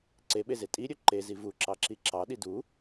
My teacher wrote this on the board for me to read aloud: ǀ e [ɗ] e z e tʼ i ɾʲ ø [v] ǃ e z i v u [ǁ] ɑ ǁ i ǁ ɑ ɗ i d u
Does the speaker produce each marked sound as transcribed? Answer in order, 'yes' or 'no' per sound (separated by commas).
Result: no, no, yes